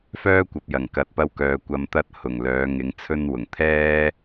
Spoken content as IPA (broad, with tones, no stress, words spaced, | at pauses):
fœː˥kʷɐ˨p̚jɐ˨˩ŋ kɐ˨t̚pɐ˧wkœː˨ kʷɐ˨mt̪ɐ˧t̚ hʊ˨˩ŋlœː˨˧ŋɪ˨˧ŋ t͡sʰɵ˧nwʊ˨˩ŋt̪ʰɛː˥